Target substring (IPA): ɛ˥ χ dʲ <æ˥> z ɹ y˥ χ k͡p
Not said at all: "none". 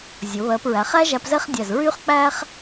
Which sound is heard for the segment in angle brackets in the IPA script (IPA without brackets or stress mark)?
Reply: æ˧˩